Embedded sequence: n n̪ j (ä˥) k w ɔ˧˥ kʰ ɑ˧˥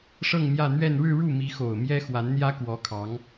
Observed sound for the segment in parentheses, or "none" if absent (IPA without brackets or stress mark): ä˥